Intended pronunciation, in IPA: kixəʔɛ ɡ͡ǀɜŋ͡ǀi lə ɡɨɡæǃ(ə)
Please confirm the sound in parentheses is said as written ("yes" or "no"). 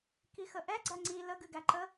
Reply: yes